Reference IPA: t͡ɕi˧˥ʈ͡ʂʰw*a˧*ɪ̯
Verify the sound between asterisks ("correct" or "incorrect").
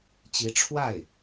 incorrect